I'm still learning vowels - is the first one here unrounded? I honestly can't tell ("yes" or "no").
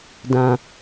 yes